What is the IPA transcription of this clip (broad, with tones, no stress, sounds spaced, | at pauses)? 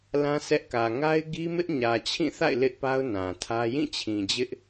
l ã˦ s ɛ˦ ʔ k ä˨ ŋ a˦ ɪ̯ ɡ i˦ m ɪ˦ ʔ ɲ ä˨ t͡ɕʰ ĩ˦˨ θ a̰˦˨ ɪ̯ l ɪ˦ ʔ p a˦ ʊ̯ n ã˨ tʰ ä˦ j ĩ˦˨ t͡ɕʰ ĩ˨ d͡ʑ ɪ˦ ʔ